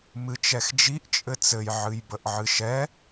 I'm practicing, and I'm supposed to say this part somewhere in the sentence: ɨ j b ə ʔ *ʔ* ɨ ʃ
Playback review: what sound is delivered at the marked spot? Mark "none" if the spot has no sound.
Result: ʕ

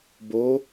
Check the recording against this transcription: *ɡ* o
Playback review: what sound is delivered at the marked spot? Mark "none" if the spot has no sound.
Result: b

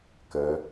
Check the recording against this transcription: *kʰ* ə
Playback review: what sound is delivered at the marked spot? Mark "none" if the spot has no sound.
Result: k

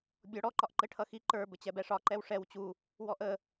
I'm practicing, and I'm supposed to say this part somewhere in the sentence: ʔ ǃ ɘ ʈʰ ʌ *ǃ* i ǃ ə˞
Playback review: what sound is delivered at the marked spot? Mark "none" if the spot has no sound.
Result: x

